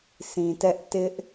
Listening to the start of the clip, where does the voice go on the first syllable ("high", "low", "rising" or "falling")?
low